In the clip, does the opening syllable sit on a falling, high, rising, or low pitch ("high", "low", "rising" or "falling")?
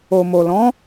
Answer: low